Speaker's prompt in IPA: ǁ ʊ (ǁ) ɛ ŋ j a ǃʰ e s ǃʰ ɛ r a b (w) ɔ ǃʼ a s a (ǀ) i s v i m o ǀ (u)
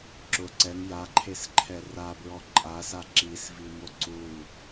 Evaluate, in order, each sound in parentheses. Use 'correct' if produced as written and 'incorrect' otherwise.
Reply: incorrect, incorrect, incorrect, correct

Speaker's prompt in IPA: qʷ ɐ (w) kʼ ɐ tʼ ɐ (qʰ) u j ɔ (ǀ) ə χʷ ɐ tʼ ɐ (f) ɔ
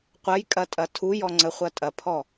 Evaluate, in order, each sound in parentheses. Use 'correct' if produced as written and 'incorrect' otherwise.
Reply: incorrect, incorrect, incorrect, incorrect

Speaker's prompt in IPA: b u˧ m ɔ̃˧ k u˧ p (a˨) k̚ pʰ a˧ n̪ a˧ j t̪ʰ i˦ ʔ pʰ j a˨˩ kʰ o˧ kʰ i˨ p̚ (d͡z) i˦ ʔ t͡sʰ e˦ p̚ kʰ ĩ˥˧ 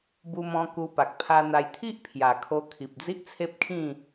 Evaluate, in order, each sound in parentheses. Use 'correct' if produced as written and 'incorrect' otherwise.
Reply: correct, correct

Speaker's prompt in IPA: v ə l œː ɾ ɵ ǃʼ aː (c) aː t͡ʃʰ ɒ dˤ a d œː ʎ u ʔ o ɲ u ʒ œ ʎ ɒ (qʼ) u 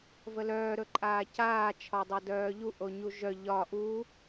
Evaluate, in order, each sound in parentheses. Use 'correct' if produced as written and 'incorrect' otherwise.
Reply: correct, incorrect

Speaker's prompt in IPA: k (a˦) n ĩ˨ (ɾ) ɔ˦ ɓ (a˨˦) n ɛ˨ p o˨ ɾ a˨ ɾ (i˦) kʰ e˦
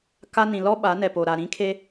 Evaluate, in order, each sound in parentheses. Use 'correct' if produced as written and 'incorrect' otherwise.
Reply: correct, incorrect, correct, incorrect

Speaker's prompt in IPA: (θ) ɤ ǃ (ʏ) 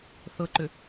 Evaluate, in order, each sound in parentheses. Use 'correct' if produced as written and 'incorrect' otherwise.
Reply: correct, correct

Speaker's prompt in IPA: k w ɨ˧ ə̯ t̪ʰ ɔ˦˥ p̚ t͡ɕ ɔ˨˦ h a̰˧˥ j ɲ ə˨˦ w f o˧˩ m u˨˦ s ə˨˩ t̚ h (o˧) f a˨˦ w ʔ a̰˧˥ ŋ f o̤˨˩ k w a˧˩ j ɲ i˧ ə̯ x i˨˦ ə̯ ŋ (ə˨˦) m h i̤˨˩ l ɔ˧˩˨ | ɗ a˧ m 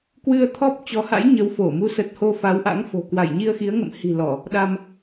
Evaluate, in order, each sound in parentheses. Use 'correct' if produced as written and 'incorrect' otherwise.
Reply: correct, incorrect

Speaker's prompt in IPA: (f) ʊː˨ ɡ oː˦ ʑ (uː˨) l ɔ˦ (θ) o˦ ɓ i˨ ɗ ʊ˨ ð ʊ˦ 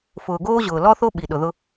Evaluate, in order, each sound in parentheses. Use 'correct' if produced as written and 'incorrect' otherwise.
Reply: correct, incorrect, correct

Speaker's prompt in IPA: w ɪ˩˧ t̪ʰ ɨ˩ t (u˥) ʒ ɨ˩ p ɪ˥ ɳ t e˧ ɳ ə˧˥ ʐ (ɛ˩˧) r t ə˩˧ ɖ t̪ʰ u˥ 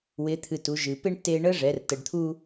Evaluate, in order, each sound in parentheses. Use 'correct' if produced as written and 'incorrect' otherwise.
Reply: incorrect, correct

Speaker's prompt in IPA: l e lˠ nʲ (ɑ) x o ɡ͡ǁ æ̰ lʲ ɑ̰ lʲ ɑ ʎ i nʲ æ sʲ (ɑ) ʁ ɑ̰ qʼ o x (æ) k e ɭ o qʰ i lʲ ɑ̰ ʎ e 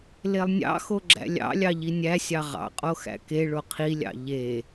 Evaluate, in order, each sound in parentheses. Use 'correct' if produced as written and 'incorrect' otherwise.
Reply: incorrect, correct, incorrect

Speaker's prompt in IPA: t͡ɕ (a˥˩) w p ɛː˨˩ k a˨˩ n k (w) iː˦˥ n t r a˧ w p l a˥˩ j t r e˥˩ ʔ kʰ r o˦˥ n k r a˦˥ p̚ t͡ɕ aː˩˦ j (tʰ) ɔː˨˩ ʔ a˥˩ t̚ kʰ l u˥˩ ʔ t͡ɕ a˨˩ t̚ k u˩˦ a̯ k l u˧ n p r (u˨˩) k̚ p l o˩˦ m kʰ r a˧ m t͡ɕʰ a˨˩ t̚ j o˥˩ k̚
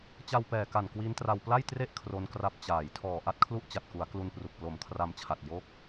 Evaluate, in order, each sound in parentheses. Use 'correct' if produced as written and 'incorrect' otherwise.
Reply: incorrect, correct, correct, correct

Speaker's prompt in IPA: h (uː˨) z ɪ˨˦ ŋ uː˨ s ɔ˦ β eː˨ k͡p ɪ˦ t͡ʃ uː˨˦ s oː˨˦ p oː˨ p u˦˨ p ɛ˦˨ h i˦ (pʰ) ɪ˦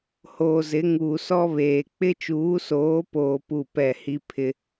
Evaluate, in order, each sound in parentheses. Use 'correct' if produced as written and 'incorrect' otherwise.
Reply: incorrect, correct

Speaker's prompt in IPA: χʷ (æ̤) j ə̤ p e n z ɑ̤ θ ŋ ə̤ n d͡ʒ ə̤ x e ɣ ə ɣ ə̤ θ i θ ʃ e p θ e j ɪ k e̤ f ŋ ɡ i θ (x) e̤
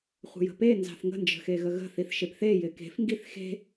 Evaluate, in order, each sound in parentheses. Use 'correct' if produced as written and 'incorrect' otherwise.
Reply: incorrect, correct

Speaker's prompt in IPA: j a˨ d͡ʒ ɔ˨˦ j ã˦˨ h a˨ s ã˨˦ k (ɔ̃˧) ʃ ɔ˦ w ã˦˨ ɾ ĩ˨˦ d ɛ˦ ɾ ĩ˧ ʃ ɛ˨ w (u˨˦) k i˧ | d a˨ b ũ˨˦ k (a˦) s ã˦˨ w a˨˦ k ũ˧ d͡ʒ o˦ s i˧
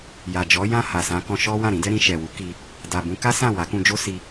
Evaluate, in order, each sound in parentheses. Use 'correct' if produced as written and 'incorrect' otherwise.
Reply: correct, correct, correct

